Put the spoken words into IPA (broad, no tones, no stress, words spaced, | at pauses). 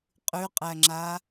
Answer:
qʼʉqʼæŋ͡ǁa